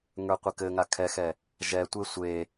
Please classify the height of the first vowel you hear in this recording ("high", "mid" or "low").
mid